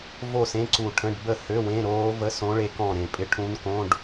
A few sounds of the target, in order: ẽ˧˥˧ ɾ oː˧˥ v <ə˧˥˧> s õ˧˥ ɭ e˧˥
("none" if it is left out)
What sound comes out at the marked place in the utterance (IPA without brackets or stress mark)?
ə˧˥˧